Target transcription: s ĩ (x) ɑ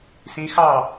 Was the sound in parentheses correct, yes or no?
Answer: yes